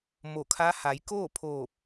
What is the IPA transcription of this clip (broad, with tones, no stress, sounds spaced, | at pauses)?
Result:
m o˧˩ kʰ a˧˥ h a˩˧ j k oː˥˨ pʰ oː˧˩ p̚